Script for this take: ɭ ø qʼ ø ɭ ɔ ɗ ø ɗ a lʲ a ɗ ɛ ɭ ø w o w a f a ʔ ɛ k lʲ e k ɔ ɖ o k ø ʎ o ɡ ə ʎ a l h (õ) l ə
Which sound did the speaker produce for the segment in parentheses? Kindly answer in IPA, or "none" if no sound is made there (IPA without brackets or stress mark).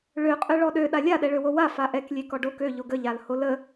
o